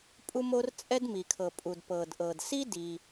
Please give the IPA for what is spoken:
pʼu˥mo˥r t͡sʼɛ˥dmi˩kʰɤ˩ pʼu˩d pɤ˩dʔɤ˩dsi˥ di˩

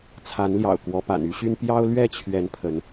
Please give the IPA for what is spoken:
t͡sʰa˨˦nljɑ̰˨˩ʊ̯ kwɔ˨˦pa̰˨˩n y˦ɕy˦n pjɑ˦ʊ̯lɥɛ˥˨t͡ɕʰɥɛ˨˦n pʰə˨˦n

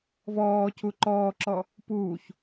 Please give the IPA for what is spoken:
vɔːcu ǃɔːǁɔ | puːç

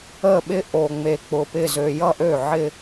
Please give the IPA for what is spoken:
ə˥˩ɓɪ˥ ʔo˨˩ ŋ͡me˨˩k͡pʊ˨˩ pɪ˥˩zø˧ jʌ˥˧ʔø˥˩ʕɪ˥˧

